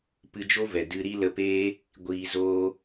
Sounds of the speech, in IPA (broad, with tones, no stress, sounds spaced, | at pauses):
p ɨ˧ d͡ʒ o˦ v ɛ˨ d ɨ˧ ɾ i˦ l ə˧ p eː˦ | ɡʷ iː˧ z oː˦